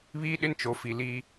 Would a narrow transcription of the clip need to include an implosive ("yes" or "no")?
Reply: yes